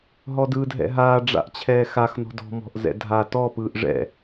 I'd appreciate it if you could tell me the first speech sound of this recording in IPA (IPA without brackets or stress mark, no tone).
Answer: ɦ